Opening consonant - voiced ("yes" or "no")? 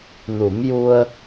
yes